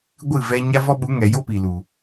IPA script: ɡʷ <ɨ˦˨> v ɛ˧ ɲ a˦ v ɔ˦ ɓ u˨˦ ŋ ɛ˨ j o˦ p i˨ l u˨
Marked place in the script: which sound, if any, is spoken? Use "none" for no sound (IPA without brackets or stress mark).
ɨ˦˨